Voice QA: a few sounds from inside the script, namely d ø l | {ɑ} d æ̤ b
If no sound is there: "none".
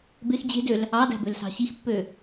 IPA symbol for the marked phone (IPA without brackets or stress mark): ɑ